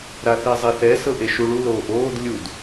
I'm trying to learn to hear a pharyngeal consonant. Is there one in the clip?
no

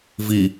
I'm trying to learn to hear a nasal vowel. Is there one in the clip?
no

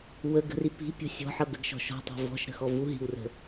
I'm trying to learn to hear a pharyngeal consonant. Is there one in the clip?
yes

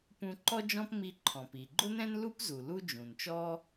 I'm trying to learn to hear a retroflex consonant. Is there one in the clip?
no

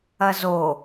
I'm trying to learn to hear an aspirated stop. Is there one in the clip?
no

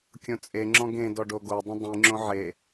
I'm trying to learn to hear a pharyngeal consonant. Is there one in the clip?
yes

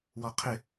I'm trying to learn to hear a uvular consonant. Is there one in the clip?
yes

